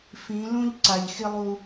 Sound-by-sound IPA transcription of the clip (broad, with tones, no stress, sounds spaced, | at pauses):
f ĩ˨˦ l ũ˦ ʎ ǀ a˨ ʎ x i˦ lˠ u˦